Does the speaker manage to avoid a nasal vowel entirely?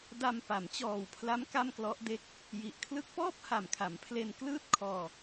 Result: yes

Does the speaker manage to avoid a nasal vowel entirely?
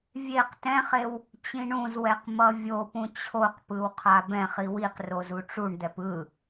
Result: no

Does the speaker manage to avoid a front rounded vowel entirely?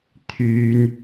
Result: no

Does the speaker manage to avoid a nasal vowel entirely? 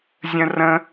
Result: no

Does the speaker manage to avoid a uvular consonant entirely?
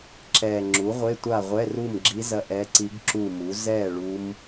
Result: no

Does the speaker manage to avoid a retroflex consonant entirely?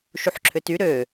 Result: yes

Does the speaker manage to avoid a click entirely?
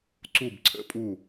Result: no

